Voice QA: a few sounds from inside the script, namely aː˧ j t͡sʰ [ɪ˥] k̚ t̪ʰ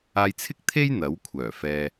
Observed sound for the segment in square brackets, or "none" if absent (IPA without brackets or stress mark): ɪ˥